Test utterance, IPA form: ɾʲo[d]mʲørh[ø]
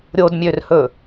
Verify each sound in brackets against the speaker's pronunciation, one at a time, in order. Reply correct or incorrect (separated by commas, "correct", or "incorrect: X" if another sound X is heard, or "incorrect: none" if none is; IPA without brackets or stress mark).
correct, incorrect: ɵ